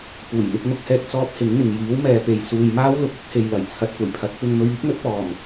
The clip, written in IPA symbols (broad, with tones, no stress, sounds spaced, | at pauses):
p uː˨˩ j n̪ ɪ˧ k̚ m ʊ˧ k̚ h ɛː˧ k̚ t͡s ɔː˥ p̚ h ɪ˨˥ ŋ n̪ ɪ˨ ŋ j iː˨˥ w m ɛː˨ p e˨ j s uː˨ j m aː˥ w l ʊ˨˥ k̚ ʊ˨˥ k̚ h e˨ j l ɐ˨˩ j t͡sʰ ɐ˨ t̚ kʷ ɐ˨˩ j pʰ ɐ˨˥ t̚ p ɪ˧ ŋ m ɵ˧ ɥ iː˥ k̚ n̪ ɵ˨˥ t̚ p ɔː˨˩ m